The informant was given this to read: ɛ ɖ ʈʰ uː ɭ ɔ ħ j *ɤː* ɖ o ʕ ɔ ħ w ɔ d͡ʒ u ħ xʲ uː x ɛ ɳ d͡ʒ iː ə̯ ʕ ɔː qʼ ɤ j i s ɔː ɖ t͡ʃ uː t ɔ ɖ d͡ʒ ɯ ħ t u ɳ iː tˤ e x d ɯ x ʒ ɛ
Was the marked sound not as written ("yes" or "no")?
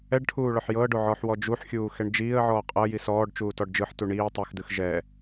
no